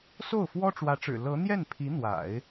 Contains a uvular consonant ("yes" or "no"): no